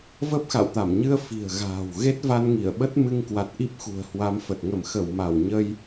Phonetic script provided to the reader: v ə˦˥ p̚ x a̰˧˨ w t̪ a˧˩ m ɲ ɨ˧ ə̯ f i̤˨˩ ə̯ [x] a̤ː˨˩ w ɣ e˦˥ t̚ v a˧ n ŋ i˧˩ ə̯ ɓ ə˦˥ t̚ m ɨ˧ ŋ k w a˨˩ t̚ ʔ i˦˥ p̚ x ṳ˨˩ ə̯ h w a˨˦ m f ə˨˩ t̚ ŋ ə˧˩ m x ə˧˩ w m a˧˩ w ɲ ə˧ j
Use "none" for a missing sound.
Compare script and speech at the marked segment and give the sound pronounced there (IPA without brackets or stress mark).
ɣ